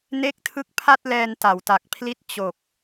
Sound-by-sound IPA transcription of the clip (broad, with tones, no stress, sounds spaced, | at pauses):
n e˦˥ k̚ tʰ ɯ˦˥ k̚ pʰ a˥˩ t̚ l ɛː˧ n t a˩˦ w t a˨˩ k̚ pʰ l i˦˥ t̚ t͡ɕ o˨˩ k̚